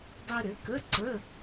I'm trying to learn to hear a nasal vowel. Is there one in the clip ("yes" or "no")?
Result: no